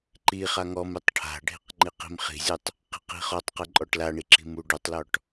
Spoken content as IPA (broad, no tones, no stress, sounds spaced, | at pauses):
ǃ i χ a ŋ ɔ m ɨ tˤ ʈʰ a̤ ɖʱ i̤ q ŋ͡ǃ i q i̤ m χ i̤ zʲ u tˤ | q i̤ q i̤ χ ɔ tˤ q ɨ ǃʼ ɔ ʈ l a ɳ i ǁ i̤ m u ɖ u tˤ l ɔ ʈ